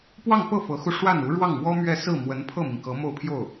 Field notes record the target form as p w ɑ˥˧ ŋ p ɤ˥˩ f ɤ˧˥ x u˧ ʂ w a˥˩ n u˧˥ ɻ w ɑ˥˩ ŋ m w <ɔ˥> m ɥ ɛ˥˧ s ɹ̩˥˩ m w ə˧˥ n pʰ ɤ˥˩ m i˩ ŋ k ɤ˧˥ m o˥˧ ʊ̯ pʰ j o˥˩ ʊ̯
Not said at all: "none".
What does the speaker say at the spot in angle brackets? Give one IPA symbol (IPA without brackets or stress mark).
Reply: ɔ˥